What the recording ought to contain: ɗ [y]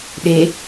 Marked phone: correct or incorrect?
incorrect